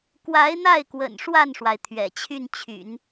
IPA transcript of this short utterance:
k w a˧˥ ɪ̯ n̪ a˥˩ ɪ̯ k w ə̰˨˩ n ʂ w a˥˩ n ʂ w a˩ ɪ̯ t̪ʰ ɥ ɛ̰˨˩ t͡ɕʰ y˥˩ n t͡ɕʰ y̰˨˩˦ n

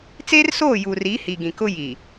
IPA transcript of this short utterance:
t͡s eː˦ r s oː˦˨ j uː˨ r iː˨˦ h i˨ ɡ ĩ˨ k ʊ˦ j i˨

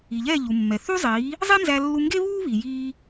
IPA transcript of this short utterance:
i˩ ʎ ɛː˥˩ ʎ u˩ mː ɛ˩ θ u˥ zˤ iː˩˥ | zˤ i˥ n z æ˧ lː u˧ ŋ ɡ e˥ β uː˥ β i˩ j iː˧

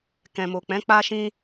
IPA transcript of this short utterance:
k ɛ̃˨ m o˨ k͡p ɛ̃˨˦ k͡p a˦ ʃ ĩ˦

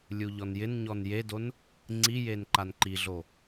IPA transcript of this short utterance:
lʲ u ʎ ɔ n j ɪ n ɲ ɔ n j e d o n | ŋ͡ǀ i j e n ǃ a n ǃ i ɮ o

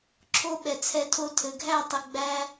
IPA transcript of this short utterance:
ǁʰ o˦ ɓ ɛ˨ t͡sʰ ɛ˧ tʰ o˧ tʰ ɘ˨ ɡʱ æ˦˨ tˤ ə˨ ɡ͡b æ˧

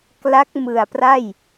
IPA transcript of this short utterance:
k l a˦˥ k̚ m ɯ˨˩ a̯ p r a˥˩ j

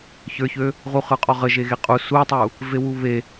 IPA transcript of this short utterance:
ç ə˞ ç ø | ʁ u χ ə˞ qʼ ɔ ʁ ə ʒ e ɣ e qʼ u s u tˤ u | v e w u β e

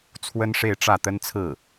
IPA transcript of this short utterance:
t͡sʰ w ə˥ n ʂ e˥˧ ɪ̯ ʈ͡ʂ ä˥˩ t̪ ə˥ n t͡sʰ ɹ̩˥˩

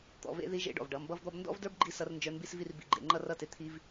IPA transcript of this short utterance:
t̪ ɔ̰˩˧ v ḛ˧˥ ð i˧˥ ʒ ḛ˧˥ ɖ ɔ̰˩ v ɖ ʌ˩˧ m b ʌ˥ v d̪ ɔ˥ b n d ɔ̰˥ v d ə˞˥ b ɡ͡ǃ i˥ s ʌ˧˥ r n d͡ʒ ə˞˧˥ n b i˥ s v i˥ r b ḭ˧ ɡ͡ǃ ḛ˩˧ ŋ͡ǃ ʌ˥ r ʌ˥ t e˧ t̪ʰ i˥ v

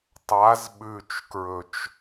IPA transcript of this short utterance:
tˤ a z ɓ ʉ t͡ʃ k ɹ ɵ t͡ʃ

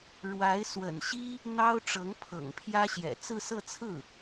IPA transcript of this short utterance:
ɻ w a˧˥ ɪ̯ s w ə̰˨˩ n ɕ i˥ | n̪ ɑ˥ ʊ̯ ʈ͡ʂ ɤ˧˥ ŋ pʰ ɤ̰˨˩ ŋ pʰ j ä˥ ɕ j ɛ̰˨˩ t͡s ɹ̩˥˧ s ɤ˥˧ t͡sʰ ɹ̩˥˩

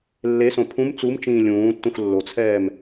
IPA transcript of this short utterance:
lː e s õ pʰ ũ m t͡s u m t͡ʃ ĩː lʲ ũː tː ũ x lː o t͡sʰ ɛː m

